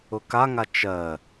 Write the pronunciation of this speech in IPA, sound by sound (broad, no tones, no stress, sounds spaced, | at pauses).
ʊ k a ŋ a t͡ʃ ɜ